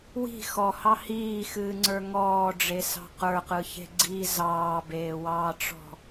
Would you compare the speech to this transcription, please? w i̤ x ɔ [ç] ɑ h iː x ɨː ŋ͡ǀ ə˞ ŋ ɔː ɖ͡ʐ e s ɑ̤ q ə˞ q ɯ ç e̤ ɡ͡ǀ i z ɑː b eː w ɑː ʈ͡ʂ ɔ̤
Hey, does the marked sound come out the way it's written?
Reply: no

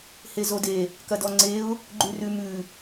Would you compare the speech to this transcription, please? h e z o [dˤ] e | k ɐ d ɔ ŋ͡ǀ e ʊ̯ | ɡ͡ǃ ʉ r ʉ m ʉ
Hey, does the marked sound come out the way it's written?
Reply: no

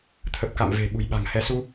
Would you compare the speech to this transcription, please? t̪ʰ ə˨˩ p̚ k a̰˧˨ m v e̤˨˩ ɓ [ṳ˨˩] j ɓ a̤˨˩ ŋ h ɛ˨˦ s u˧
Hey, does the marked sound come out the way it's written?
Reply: yes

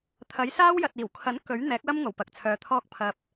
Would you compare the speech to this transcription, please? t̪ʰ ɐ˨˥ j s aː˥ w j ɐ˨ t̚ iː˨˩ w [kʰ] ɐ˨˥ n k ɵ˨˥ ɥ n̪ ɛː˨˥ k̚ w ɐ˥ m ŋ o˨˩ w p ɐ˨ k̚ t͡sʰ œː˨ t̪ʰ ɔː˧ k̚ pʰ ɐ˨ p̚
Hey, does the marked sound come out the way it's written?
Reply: yes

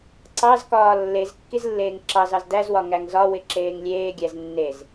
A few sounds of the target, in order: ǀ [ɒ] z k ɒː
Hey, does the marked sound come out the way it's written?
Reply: no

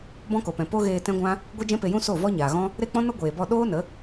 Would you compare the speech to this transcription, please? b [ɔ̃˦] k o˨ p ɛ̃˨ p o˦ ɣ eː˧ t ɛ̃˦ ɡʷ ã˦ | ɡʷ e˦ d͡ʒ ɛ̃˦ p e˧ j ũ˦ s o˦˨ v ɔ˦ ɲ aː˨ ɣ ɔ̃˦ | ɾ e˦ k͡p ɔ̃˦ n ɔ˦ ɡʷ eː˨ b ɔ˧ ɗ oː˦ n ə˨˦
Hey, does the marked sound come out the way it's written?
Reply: yes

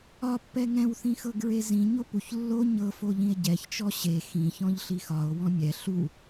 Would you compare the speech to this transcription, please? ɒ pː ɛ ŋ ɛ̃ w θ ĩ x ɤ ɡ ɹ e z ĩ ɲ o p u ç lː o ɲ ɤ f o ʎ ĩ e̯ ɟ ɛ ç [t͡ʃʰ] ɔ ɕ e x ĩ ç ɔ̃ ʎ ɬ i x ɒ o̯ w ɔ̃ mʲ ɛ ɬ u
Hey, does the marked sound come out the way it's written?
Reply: no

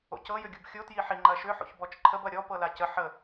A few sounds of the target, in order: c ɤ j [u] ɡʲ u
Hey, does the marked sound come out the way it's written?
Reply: no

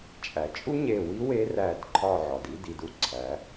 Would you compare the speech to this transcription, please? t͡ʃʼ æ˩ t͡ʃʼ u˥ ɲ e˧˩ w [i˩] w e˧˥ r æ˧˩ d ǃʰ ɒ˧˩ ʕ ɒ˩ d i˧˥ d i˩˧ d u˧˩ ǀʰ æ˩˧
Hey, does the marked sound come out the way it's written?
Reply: no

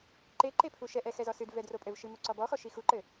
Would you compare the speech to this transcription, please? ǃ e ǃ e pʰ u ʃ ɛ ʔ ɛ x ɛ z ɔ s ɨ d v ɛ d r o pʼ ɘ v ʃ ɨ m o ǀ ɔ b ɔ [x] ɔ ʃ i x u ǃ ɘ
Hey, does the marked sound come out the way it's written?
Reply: yes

